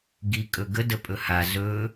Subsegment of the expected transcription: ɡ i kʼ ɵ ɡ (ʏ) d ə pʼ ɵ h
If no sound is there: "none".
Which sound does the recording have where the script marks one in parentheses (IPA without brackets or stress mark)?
ə